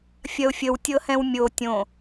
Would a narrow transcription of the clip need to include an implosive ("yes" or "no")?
no